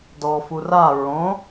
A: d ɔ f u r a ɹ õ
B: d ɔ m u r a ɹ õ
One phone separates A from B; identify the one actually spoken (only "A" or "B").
A